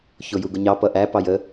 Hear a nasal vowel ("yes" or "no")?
no